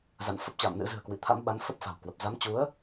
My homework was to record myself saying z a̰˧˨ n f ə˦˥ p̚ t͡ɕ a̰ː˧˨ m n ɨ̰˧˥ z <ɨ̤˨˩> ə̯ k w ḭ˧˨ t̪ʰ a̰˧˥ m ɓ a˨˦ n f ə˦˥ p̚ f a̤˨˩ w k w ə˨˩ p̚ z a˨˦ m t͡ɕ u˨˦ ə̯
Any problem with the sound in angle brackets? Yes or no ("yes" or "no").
no